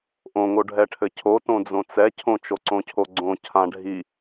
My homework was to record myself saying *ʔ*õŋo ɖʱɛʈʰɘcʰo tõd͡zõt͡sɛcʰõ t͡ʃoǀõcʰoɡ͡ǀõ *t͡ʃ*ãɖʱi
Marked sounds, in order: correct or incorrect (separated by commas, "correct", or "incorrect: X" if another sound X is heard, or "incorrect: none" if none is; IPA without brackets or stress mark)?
correct, incorrect: cʰ